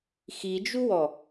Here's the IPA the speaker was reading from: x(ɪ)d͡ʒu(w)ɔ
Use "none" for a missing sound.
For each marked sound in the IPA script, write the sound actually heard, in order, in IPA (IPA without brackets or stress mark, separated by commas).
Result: i, w